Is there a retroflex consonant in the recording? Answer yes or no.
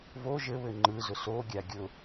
no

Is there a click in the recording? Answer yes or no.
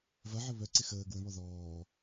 yes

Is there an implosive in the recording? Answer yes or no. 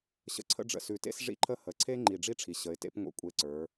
no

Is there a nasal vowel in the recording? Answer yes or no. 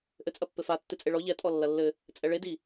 no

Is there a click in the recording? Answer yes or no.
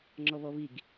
yes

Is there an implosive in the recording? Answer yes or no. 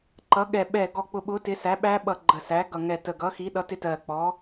yes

